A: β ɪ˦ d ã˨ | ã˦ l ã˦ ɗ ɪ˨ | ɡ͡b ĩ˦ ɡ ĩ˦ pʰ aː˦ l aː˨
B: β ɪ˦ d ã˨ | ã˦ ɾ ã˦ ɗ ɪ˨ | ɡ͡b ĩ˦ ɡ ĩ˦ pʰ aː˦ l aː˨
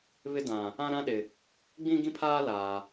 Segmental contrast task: B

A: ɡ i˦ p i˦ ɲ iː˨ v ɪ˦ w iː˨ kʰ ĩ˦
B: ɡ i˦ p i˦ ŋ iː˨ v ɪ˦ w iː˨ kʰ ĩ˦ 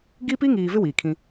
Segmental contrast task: B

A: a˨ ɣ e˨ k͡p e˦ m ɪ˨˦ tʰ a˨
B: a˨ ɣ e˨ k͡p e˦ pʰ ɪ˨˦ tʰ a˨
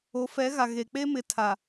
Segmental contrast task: A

